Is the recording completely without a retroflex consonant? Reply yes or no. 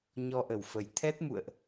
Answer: yes